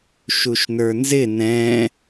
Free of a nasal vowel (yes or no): no